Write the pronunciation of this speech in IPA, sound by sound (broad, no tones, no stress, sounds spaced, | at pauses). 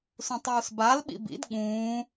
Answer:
s ũ tˤ uː s b a l ɓ ḭ b ḭ d ɠ ũː